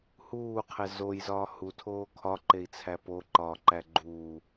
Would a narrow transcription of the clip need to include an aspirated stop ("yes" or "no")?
yes